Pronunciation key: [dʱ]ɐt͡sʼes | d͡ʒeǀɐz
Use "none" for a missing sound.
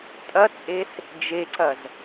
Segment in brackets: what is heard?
tʼ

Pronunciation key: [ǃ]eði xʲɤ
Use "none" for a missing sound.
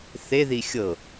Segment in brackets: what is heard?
θ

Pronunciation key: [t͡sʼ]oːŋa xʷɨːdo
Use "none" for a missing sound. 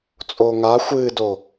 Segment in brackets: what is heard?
t͡sʼ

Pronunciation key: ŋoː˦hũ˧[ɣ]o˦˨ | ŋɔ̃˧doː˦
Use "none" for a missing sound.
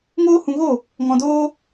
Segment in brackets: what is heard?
ɣ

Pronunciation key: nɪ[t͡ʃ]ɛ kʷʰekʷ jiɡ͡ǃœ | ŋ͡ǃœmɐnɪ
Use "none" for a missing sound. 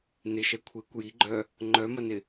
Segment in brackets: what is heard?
ʃ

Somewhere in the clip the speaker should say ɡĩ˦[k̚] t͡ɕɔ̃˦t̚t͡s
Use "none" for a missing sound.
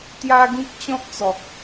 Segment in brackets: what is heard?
k̚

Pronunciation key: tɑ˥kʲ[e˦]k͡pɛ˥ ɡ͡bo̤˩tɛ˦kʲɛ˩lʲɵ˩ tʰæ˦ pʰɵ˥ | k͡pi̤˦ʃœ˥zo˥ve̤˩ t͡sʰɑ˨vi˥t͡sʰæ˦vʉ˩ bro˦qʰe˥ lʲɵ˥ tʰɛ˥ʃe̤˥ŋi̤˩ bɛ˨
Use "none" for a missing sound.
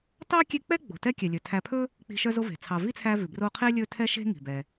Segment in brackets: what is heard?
e˦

